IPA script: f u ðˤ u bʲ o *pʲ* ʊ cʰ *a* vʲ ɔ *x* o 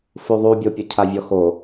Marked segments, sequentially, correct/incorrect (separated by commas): correct, correct, correct